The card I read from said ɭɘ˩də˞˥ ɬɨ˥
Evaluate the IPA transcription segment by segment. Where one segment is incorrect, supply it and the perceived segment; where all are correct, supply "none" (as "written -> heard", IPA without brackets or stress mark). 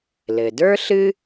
ɭ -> l